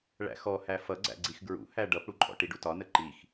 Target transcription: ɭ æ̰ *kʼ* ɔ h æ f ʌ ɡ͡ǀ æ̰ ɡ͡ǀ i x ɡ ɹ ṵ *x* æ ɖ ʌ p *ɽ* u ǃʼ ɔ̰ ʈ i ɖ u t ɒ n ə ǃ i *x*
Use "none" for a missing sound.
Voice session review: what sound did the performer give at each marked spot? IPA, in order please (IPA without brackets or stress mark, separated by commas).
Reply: x, h, ɽ, x